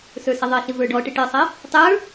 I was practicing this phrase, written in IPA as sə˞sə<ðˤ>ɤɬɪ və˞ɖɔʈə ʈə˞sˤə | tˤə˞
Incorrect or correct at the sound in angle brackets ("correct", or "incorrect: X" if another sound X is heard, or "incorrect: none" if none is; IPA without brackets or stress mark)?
correct